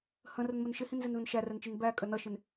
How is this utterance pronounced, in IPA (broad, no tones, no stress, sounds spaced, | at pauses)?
h ə̃ r ə n m ə n ʃ ɪ h ĩ n z ɪ n ð ə̃ n ʃ æ r ɛ n t͡ʃ i n b æ kʼ ə n ʌ ʃ ɪ n